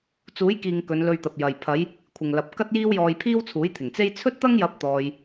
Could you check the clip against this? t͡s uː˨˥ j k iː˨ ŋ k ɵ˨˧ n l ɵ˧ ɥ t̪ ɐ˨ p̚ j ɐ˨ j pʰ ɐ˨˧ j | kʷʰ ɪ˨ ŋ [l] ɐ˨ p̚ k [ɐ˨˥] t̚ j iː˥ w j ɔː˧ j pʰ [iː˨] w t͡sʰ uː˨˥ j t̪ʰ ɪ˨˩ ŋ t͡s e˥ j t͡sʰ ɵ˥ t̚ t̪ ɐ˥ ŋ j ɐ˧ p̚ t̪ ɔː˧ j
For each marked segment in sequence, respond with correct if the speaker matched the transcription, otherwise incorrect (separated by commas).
correct, incorrect, incorrect